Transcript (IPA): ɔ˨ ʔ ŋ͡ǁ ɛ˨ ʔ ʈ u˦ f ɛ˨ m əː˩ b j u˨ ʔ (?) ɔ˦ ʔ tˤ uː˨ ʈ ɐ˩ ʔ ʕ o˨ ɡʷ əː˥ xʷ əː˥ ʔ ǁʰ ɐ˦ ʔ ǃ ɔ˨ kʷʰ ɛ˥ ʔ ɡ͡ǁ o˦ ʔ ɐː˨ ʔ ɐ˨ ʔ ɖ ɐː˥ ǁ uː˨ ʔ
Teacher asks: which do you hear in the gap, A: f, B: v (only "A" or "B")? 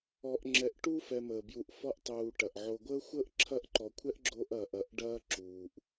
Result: A